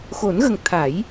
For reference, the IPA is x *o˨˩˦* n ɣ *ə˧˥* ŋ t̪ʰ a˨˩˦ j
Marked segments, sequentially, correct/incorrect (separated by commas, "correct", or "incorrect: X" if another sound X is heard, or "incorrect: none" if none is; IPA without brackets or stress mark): correct, incorrect: ə˨˩